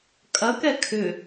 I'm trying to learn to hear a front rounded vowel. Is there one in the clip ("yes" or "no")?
yes